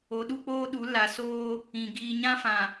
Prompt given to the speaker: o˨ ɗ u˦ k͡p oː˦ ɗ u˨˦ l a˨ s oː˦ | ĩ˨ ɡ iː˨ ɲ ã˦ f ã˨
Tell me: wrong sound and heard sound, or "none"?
none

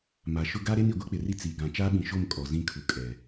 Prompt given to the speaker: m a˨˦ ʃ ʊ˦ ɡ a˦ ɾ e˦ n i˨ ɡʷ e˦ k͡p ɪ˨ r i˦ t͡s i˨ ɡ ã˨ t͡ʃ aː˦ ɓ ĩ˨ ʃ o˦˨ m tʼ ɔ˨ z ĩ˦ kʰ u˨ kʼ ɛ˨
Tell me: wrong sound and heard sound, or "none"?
tʼ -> kʼ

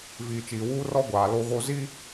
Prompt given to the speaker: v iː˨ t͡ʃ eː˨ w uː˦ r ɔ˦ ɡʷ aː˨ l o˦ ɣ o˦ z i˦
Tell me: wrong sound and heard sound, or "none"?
eː˨ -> iː˨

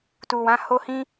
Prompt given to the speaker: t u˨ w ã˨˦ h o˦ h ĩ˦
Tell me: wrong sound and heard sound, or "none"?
none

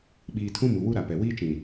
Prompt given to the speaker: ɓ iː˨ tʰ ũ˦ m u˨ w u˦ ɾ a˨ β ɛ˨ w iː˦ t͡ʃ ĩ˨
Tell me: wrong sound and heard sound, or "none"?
β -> p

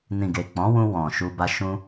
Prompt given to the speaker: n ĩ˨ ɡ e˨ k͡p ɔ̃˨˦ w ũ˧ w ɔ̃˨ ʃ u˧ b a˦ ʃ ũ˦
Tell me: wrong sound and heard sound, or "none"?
none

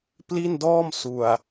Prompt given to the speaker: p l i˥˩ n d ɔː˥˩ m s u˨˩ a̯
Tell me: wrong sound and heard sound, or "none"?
none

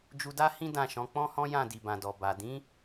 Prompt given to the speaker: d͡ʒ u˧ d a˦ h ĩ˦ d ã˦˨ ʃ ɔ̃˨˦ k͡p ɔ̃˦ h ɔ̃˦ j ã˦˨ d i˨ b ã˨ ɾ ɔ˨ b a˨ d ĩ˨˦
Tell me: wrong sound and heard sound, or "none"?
ɾ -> d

